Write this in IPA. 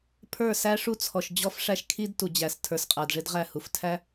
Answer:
pʰ ə˞˦˨ s æ˦ ʂ u˦ t͡sʰ ɔ˨ ʃ d͡ʑ ɔ˦ f ʂ æ˦ ʃ kʰ i˦ d t u˨ d͡ʑ æ˨ s tʰ ə˞˨ s qʼ æ˨ d ʐ ɪ˦ d ʁ æ˦˨ h u˨ f tʰ æ˦

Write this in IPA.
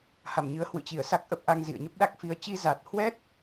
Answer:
h a˧˩ m ɲ ɨ˨˦ ə̯ h w ɨ̰˧˨ t͡ɕ i˧˩ ə̯ s a˦˥ k̚ ʔ ə˦˥ p̚ ʔ a˧ ŋ z ḭ˧˨ ə̯ ɲ ə˦˥ p̚ ɗ a˦˥ k̚ f i˧ ə̯ t͡ɕ i˧ z a˨˩ t̚ h w ɛ˦˥ t̚

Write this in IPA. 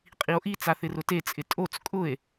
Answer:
qʼ i o̯ ʔ i t͡s a θ ɪ r ʊ t e t͡sʼ ɪ tʼ o t͡s kʼ ʊ e̯

